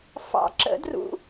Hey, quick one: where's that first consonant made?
lips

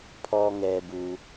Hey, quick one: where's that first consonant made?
lips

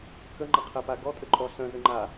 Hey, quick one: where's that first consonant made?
velum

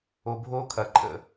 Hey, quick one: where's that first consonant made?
lips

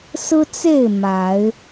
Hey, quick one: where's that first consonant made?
tongue tip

